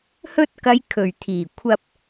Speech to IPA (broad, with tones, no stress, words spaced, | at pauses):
hɵ˧t̚kɐ˨j kʰɵ˨˩ɥt̪ʰiː˨˩kʷʰɐ˧p̚